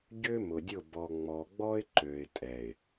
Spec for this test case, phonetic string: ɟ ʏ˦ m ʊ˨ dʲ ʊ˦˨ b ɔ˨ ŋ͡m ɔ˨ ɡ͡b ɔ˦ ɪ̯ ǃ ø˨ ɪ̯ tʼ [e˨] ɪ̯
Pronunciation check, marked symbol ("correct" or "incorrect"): incorrect